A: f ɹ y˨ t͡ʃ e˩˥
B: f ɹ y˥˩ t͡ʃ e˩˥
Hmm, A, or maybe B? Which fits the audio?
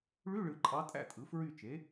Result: B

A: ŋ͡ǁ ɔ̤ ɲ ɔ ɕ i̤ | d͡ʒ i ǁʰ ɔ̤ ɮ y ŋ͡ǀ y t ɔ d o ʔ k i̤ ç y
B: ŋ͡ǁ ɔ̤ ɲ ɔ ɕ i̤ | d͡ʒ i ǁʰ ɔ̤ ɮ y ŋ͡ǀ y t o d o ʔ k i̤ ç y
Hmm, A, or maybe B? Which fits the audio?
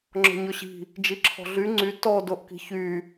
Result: A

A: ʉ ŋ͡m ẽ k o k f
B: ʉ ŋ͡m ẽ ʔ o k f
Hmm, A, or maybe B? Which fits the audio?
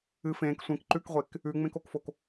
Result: A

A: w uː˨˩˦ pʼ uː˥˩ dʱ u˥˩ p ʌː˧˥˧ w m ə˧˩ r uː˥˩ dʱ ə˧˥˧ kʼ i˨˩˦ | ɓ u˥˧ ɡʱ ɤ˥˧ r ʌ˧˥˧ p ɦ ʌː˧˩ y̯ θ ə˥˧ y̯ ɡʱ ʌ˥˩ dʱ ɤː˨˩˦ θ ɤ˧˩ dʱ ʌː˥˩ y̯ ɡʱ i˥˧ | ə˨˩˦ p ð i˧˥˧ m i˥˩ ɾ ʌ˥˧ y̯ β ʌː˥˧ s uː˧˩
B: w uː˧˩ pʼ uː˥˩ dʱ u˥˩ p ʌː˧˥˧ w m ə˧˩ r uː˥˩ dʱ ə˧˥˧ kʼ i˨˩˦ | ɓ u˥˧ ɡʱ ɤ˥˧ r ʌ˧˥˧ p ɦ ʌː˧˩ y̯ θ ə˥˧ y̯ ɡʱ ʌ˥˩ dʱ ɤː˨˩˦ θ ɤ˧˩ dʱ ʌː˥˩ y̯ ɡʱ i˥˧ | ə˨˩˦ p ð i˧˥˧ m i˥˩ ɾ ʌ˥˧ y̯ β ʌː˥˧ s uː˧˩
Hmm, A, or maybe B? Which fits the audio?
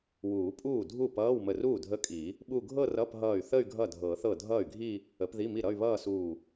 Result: A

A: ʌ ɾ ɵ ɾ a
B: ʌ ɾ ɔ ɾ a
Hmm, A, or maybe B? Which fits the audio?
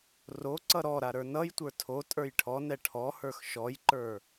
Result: B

